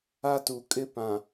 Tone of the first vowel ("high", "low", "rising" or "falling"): high